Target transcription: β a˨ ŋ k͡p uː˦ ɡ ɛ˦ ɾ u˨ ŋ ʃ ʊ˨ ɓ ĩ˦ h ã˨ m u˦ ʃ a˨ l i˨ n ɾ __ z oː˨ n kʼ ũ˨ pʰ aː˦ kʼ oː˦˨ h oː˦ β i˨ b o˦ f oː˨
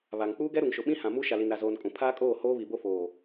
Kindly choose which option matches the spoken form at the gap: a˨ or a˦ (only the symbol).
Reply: a˨